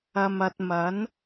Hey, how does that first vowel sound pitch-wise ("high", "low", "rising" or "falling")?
low